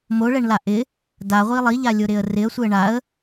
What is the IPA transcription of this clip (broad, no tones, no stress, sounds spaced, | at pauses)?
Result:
m o ɭ ɛ ɳ l a ʔ ɪ | d a ʁʷ i lˠ i ʎ a lʲ ʊ ɾ ɪ ə̯ r ɪ ə̯ sʷ ɪ ə̯ ɳ a ə̯